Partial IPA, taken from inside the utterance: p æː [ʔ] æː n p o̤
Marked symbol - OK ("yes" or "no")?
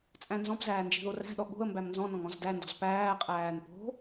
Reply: no